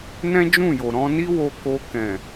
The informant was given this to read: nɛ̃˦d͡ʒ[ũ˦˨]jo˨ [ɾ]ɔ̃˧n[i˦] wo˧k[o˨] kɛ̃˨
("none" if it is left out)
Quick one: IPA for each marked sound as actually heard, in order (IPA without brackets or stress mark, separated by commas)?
ũ˦˨, ɾ, i˦, o˧